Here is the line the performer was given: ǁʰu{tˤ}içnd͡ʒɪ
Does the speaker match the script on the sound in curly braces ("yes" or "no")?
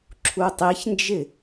yes